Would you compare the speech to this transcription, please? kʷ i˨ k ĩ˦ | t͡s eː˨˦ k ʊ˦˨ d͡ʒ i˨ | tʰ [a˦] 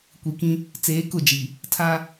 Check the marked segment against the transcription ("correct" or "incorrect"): correct